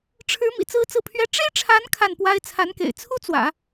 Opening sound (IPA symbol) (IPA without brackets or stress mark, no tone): ʈ͡ʂʰ